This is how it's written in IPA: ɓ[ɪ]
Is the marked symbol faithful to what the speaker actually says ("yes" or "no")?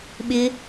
yes